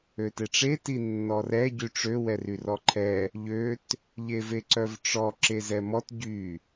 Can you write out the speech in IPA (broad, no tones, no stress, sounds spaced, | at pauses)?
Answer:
ø t e ʈ͡ʂ e t i nː ɔ r ɛ ɟ y ʈ͡ʂ ø w ɛ r y r ɔ ǃʰ ɛ | ʎ ø t | ʎ e v e ǀ œ v ʈ͡ʂ ɔ ǁ e z ɛ m ɔ t ɟ y